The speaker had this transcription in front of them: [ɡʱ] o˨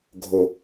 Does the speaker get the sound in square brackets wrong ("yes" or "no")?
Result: no